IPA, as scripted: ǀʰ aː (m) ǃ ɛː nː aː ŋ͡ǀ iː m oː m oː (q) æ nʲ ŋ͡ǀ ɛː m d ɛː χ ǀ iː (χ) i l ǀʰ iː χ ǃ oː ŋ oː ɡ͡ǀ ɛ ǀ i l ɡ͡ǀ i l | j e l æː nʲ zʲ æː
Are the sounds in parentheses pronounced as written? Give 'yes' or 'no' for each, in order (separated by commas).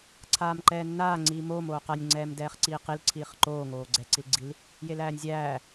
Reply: yes, yes, no